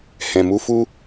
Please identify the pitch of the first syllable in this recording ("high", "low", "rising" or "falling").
low